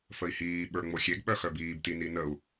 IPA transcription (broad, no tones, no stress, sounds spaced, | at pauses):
f ə i̯ h iː ɓ ə˞ ŋ͡m o xʲ e ɡ ɓ œ x œ b iː b t i n i n ə u̯